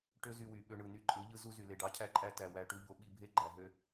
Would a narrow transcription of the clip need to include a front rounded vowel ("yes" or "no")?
yes